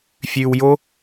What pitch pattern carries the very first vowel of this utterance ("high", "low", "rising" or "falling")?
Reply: low